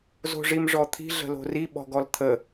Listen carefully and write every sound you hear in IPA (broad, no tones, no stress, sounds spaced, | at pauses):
z o̤ ʐ i m ʐ ɔ t̪ʰ i̤ ɮ ə̤ l o̤ r i ɓ ɔ̤ ɡ ɔ l t̪ʰ ə